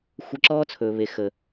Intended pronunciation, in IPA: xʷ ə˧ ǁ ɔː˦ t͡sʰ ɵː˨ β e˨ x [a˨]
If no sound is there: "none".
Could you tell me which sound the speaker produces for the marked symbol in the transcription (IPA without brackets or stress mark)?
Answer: ə˨